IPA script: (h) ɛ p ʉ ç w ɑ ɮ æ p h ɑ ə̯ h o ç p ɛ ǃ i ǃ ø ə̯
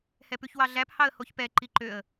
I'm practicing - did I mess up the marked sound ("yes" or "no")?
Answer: no